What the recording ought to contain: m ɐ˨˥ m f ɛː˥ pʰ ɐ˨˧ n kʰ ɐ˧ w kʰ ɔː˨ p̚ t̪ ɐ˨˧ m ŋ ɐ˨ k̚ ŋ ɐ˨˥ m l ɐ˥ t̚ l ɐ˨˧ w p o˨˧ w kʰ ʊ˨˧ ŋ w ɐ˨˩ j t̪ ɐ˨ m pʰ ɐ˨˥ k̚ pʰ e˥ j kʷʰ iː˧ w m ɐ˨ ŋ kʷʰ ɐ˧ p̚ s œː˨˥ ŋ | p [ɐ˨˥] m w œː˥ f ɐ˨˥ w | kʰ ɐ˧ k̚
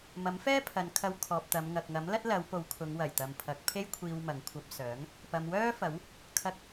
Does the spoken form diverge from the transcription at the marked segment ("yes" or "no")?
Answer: yes